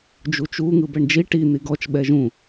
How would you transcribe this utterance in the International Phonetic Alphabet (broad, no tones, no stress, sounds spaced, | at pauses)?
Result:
d͡ʒ u t͡ʃ u ŋ ɯ b ɛ ɳ d͡ʒ i ʈ i n̪ i ɡ ɔ t͡ʃ ɓ ɛ ʒ ũ